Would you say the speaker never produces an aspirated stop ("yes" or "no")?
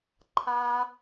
no